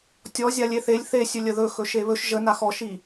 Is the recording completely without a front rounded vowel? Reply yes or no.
yes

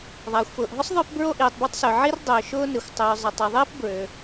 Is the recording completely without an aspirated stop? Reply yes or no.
yes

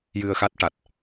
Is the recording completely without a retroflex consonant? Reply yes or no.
no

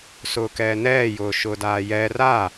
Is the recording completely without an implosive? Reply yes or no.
yes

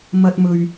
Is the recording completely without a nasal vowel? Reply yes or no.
yes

